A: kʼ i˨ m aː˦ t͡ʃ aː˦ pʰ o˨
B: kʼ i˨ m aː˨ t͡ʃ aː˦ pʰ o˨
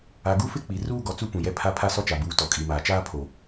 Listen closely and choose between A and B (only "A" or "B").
B